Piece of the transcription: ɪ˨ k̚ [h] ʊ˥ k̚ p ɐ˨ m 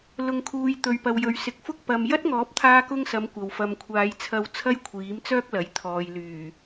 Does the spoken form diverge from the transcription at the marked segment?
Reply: yes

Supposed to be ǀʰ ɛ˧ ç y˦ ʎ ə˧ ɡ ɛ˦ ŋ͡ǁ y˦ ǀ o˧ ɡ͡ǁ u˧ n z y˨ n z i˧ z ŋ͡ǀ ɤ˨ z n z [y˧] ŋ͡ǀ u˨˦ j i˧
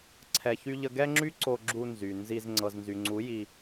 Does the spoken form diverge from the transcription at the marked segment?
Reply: yes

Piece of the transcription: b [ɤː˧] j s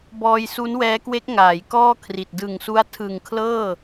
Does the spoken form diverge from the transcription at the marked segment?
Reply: yes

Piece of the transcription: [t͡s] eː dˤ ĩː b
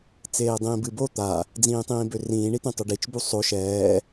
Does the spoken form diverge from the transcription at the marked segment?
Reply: no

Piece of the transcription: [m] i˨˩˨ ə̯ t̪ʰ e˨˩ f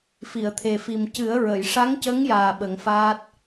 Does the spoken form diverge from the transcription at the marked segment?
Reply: yes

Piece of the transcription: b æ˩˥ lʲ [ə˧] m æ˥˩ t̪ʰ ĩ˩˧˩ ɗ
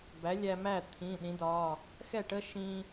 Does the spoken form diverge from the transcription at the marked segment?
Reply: yes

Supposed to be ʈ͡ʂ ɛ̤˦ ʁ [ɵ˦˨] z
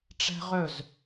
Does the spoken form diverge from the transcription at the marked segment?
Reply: no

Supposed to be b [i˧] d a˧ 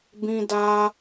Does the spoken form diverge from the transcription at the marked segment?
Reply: yes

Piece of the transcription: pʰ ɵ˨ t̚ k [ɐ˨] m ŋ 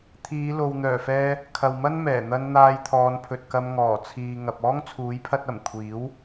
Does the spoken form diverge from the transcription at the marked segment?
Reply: yes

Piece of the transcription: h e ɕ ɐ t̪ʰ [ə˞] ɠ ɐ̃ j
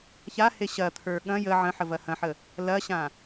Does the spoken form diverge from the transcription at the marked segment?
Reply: no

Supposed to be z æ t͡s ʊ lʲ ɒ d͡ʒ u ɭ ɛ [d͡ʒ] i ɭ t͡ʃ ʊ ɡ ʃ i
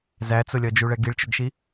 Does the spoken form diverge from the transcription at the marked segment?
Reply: yes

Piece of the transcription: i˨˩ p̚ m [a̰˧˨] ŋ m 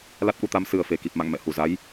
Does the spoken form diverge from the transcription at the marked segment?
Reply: no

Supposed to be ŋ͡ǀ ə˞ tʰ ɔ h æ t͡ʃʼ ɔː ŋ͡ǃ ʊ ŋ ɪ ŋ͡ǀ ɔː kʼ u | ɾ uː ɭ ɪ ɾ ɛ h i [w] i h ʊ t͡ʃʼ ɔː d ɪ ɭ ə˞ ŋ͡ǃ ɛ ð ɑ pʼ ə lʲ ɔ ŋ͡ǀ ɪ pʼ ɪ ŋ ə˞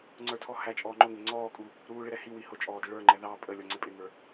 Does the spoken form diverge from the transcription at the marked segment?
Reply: no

